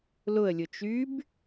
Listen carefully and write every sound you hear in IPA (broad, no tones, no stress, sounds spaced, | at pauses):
l ʊ ə̯ lʲ ʊ t͡ʃ y b